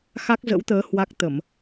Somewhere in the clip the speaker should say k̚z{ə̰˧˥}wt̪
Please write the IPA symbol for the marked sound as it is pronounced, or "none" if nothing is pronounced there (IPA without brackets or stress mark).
ə̰˧˥